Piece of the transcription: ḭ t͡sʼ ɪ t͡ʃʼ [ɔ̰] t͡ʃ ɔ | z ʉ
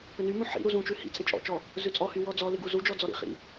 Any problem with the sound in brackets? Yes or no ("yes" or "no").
no